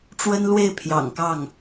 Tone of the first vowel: high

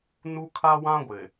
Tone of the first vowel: high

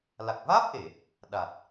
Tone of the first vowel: low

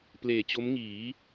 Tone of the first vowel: low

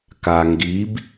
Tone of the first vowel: low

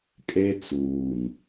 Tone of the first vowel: high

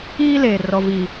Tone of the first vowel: high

